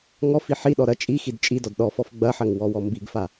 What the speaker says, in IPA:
ŋ ɔ f i ħ i ɗ ɔ ɾ ɐ t͡ʃʼ i x i d t͡ʃʼ i d ɔ d ɗ ɔ f ɔ f ɡ͡b ɐ ħ ɐ ŋ w ɔ w ɔ m b i ɡ f a

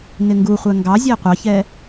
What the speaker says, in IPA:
n ɪ ŋ ɡ u χʷ ɛ ŋ ɡ ɑ zʲ æ qʷ ɑ ç ɛ

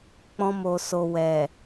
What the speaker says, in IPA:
k͡p ɔ̃˧ m o˨ s o˨ w ɛ˨

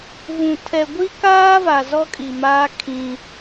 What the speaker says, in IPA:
v ũ˨ tʰ ɛ˨ ɡʷ i˦ k aː˦ v a˨ z ɔ˦ kʼ i˨ m aː˦ kʰ ĩ˦

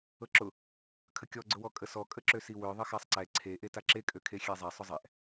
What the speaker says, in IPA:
ɤ ǁ ʊ | kʰ ə kʲ ɔ ɡ͡ǀ ʊ w ɔ kʼ ə s ɔ kʼ ə ǁ ø s i w ø ðˤ ə x a sˤ ǀ ɛ ǀʰ e ʔ e t a ǁ e kʼ ø kʰ e xʲ e zˤ ɛ sˤ ʊ zˤ ɛ ʔ

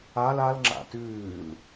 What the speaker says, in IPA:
a l a l ŋ͡ǁ a̰ t ʉː l

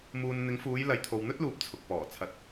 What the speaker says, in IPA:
m uː˨ n n̪ ɪ˨˧ ŋ f uː˨˧ j l ɐ˨ j t̪ʰ o˨ w n̪ ɵ˥ t̚ l uː˨ p̚ t͡sʰ ʊ˨ k̚ p ɔː˨˩ t͡sʰ ɐ˨ t̚

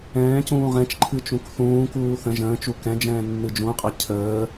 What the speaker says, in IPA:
ɛ̃ː c ũː ʁ ɛ̃ t͡ʃ ǃʰ ɨ t͡ʃ ũ k θ ũː k uː θ ə̃ ʒ ə̃ː t͡ʃ u k ɛ̃ d͡ʒ ɛ̃ː nː ɨ d͡ʒ ũ qʼ a cʰ əː

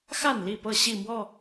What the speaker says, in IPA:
x a˥˨ n l i˥˨ p ɤ˥˨ ɕ i˥˨ m w ɔ˥˨

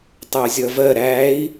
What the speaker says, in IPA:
tˤ ə u̯ zʲ ʌ v ɜ ɾ æ i̯

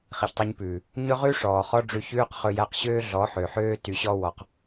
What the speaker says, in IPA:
χ i˨ ç tˤ i˧ ɲ p ʉː˨ | ɲ ɵ˦ ʁ ʉ˦ ʂ ɔː˨ χ ɔ˦ ɖ͡ʐ ʉ˧ ç ʉː˦ q χ ɵ˧ j æ˧ q ɕ øː˦ ɮ ɔ˨˦ ħ ø˨ ħ øː˦ t y˨ ɕ ɔ˧ w ɔ˨ q

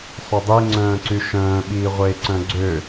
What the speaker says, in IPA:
sˤ ø dˤ i ŋ͡ǀ œ̃ː ǀ y ʃ œ̃ː ɓ iː ʁʷ eː ǀ œ̃ ɡ͡ǀ ø

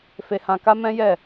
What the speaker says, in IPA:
f e˧ h ã˧ k a˦ m ɛ̃˦ j ɛ˦˨

